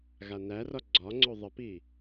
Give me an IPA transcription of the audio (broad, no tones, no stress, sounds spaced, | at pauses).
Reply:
ɣ a n æ r ɒ ɡ͡ǀ ɒ ŋ͡ǀ o ðˤ ə p i